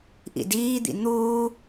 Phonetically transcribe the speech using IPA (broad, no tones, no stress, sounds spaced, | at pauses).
ʔ ḭ d iː d̪ ḭ n̪ uː